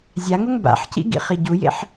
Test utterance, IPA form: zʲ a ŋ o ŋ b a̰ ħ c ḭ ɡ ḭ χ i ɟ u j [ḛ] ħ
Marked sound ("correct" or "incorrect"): correct